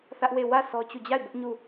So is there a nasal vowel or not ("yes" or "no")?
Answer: no